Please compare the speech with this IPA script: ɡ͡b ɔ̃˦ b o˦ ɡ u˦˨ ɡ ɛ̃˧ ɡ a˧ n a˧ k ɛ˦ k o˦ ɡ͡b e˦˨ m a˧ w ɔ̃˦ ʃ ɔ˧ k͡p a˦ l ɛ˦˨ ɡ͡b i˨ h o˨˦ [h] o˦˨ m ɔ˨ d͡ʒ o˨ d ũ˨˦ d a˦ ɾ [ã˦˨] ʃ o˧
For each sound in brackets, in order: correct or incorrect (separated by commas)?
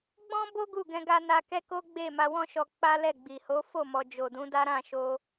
incorrect, correct